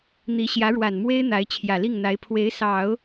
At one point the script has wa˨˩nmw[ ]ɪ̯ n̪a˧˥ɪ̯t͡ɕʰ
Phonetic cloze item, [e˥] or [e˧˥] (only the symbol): e˥